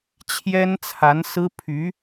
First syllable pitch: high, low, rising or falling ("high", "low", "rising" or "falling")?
high